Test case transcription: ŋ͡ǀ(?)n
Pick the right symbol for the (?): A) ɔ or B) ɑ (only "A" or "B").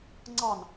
B